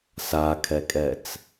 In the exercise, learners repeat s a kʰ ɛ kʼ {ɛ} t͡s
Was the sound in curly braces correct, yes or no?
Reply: yes